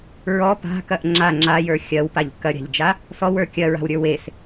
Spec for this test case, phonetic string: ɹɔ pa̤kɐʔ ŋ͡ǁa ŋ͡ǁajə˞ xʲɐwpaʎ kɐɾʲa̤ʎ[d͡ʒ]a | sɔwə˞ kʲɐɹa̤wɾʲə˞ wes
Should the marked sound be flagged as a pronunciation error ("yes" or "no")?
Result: no